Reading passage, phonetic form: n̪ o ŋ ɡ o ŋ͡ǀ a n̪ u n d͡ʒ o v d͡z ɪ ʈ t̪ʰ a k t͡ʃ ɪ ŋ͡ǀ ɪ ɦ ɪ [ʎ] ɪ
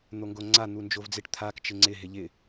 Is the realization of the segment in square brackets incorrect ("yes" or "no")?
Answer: no